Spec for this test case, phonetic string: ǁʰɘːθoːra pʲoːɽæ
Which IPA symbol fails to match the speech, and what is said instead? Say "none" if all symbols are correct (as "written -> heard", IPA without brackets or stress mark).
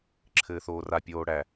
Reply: none